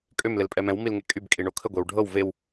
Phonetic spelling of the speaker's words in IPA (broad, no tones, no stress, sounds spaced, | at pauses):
kʼ ø m l ɪ l pʼ ɛ m ɛ̃ w m i l ŋ e kʼ y b kʼ i ɳ o kʰ ə ɡʷ e w ɖʱ ɤ w v e w